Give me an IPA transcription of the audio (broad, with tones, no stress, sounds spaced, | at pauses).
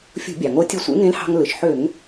fʲ ṳ˧˩˧ bʲ ɑ˩ ŋ o˧˥ tʲ ɯ˧ sʷ ḛ˧˥ ŋ ẽ˧˥ l h ɑ̤˧ ŋ l ɯ˩ ʃ ħ ø˧˩˧ ŋ